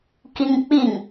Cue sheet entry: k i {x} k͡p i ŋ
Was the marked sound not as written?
yes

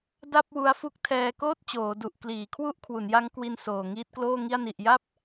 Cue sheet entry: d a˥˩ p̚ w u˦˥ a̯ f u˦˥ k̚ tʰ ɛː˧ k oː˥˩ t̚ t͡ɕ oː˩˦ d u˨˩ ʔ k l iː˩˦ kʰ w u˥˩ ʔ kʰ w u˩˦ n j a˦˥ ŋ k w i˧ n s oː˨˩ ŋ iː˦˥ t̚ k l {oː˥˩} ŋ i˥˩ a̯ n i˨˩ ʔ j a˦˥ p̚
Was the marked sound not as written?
no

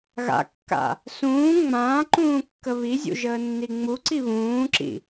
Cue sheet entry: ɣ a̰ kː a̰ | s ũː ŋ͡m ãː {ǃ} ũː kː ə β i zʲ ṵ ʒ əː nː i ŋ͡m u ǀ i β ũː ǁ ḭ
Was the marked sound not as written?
no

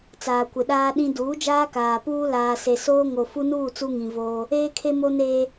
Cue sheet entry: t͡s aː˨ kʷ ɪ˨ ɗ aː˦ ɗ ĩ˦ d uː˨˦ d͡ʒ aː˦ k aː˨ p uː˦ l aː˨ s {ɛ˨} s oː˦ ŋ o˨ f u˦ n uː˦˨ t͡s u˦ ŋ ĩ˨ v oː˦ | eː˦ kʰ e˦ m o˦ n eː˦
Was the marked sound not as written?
yes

